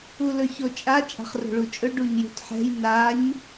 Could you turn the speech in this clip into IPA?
ulɵçot͡ʃʼa t͡ʃʼa̤χro̤ɭut͡ʃʼɵ ɖuɲjṳtħɛ̤j naɲ

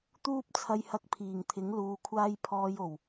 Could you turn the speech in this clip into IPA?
t̪uː˥p̚t͡sʰɐ˧jhɐ˧k̚ pʰiː˨˩ŋt̪ʰɪ˨˥ŋluː˨˧kʷʰaː˥j pʰɔː˧jo˨˩w

